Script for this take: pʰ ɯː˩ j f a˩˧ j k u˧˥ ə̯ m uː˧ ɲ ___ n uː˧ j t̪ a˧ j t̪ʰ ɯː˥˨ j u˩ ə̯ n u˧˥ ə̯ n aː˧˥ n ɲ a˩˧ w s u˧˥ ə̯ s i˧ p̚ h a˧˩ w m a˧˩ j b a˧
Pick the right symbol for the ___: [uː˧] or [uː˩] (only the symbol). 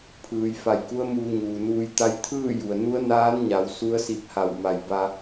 uː˩